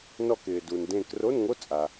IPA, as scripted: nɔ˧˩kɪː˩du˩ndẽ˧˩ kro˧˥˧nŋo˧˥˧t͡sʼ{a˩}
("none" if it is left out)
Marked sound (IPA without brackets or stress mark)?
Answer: a˩